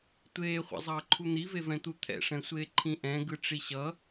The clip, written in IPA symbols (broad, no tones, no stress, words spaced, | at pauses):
tʷeːχʷa̰zˤʌːǃʰu n̪ivevɛ̃t̪u t̪ʰɛ̰ʂɛ̃sʷeː ǃʰĩʔɛ̃ɡɯ ʈ͡ʂiɕʌ